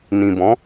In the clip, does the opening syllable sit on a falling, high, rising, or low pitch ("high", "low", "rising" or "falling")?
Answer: low